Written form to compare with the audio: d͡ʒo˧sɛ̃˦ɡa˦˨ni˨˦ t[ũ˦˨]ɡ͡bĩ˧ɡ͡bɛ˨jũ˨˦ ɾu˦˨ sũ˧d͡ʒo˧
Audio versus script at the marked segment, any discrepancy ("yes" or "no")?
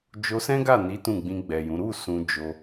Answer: no